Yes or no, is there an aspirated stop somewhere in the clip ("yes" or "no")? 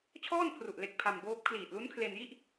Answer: yes